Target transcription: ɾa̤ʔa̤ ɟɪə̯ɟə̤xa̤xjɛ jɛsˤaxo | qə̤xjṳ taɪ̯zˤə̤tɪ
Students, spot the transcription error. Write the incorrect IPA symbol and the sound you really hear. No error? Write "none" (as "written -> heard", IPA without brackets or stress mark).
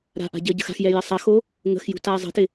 q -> ŋ